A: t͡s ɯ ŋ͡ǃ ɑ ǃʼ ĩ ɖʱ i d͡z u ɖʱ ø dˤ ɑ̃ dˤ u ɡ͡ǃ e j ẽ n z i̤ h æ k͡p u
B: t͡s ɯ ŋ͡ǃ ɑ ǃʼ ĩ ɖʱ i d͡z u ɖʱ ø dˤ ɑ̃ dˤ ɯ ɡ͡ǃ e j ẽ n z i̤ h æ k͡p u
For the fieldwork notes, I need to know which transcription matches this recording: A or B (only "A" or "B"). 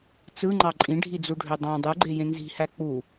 B